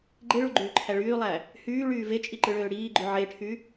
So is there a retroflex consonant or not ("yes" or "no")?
yes